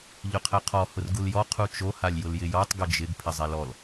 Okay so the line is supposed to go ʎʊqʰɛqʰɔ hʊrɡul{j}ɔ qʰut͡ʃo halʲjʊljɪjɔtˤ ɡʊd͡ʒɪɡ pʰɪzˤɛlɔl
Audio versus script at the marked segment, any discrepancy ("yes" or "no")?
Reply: no